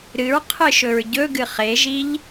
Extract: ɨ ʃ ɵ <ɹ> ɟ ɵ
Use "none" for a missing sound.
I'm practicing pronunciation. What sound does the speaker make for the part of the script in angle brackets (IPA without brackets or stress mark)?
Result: ɹ